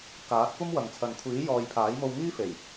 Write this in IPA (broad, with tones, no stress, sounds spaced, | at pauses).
k aː˨˥ t̚ kʷ ɐ˥ m w ɐ˨ ŋ t͡sʰ ɐ˨ n kʷʰ iː˨˥ j ɔː˨ j pʰ aː˨˥ j m o˧ w ŋ iː˥ f e˨˩ j